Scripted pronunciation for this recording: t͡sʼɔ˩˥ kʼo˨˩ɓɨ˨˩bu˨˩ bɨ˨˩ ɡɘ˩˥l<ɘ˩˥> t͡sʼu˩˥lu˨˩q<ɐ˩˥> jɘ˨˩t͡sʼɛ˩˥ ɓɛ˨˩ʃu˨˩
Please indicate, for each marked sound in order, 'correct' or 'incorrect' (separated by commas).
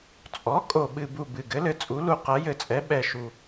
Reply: correct, correct